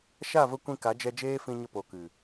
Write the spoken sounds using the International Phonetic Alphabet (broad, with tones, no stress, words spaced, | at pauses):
ʃa˦˨və˧ kʷĩ˧ka˨˦d͡ʒɛ˧ d͡ʒeː˦fĩ˧ɲə˧ po˨kɨ˨